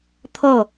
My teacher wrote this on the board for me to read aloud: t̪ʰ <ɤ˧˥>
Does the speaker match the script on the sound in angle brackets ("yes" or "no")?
no